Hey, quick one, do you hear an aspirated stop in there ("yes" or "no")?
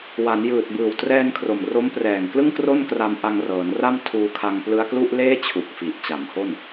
yes